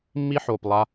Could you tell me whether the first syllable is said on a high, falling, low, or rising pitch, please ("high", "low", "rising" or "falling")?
high